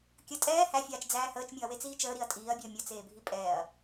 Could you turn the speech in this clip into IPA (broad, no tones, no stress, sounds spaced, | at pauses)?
kʲ ə tʼ ɛː h æ fʲ aː t͡ʃ d͡z æː h əː t͡ʃ mʲ u ɐ̯ w e t͡s iː t͡ʃ əː ɾ i ɐ̯ tʼ iː ɐ̯ bʲ əː mʲ ə t͡s eː bʱ i pʼ ɛː ɐ̯